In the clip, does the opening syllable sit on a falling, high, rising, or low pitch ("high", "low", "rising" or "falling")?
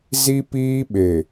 high